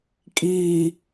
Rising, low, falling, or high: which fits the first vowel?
low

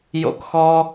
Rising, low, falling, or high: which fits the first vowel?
high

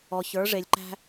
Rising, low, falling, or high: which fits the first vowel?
low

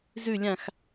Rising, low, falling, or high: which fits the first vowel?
falling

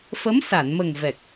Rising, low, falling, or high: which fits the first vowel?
rising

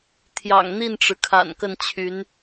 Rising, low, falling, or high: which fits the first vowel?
low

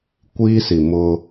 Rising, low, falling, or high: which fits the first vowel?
high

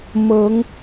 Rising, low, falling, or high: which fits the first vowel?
rising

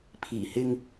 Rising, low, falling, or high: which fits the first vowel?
low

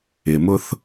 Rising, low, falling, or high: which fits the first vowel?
low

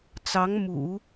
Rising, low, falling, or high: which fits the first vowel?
rising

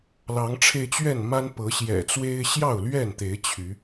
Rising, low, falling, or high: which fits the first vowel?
rising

